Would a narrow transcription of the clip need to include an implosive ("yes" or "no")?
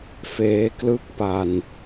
no